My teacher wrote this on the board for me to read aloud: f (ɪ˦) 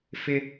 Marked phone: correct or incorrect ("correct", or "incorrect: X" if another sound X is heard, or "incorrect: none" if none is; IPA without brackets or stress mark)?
correct